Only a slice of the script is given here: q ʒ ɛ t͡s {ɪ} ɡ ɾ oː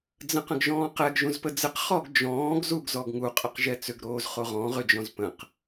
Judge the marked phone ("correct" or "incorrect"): incorrect